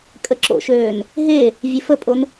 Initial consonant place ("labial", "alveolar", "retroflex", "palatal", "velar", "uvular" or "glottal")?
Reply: velar